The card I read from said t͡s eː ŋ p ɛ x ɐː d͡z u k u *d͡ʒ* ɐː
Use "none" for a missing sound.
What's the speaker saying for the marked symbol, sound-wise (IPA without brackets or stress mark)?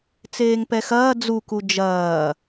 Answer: d͡ʒ